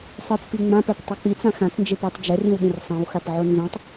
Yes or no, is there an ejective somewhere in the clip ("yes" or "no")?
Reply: no